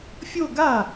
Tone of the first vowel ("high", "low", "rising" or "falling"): falling